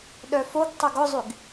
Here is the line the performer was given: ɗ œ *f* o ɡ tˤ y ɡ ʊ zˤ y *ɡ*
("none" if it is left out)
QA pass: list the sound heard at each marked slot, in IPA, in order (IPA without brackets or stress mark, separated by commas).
f, ɡ